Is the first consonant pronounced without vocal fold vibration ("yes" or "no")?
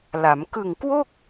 no